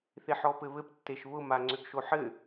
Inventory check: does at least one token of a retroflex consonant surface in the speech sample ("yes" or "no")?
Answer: no